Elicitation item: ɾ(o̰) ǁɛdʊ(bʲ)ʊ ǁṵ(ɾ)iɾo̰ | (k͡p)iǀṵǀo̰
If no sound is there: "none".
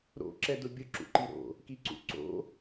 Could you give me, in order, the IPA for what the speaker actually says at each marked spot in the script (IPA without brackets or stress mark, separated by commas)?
o̰, bʲ, ǃ, k